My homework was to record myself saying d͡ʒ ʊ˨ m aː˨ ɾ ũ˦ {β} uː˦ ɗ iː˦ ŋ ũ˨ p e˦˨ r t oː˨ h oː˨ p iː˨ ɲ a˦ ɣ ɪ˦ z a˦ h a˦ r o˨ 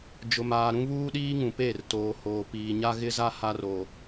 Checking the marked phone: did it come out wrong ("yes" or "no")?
no